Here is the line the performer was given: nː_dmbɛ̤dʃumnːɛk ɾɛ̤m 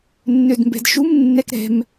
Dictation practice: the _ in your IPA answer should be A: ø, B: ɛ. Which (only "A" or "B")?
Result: A